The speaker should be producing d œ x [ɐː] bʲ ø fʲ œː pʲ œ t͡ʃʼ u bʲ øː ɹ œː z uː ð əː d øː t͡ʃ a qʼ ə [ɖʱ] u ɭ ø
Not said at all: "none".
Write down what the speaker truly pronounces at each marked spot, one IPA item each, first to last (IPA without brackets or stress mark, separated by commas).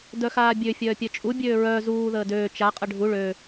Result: aː, ɖʱ